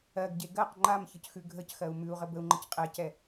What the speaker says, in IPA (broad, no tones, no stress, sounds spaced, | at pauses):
ɜ ɡ ɟ e ɡ ɜ q ŋ͡ǃ a m ç ə c x ʉ ɡʱ ə c x ɜ u̯ m ʉ u̯ ʁ ə b ə u̯ ŋ͡ǃ ə c qʼ ɛ c ɛ